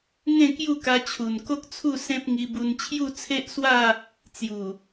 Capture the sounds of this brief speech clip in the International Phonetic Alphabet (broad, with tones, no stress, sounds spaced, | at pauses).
ŋ ẽ˥˧ k j u˥˧ k a˧ t͡ɕʰ u˨˩ n k o˦ k̚ t͡sʰ u˥˧ s ẽ˦ p̚ ŋ i˧ b u˧ n t͡ɕʰ j u˥˧ t͡sʰ e˦ ʔ s w a˥˧ | t͡s j u˨˩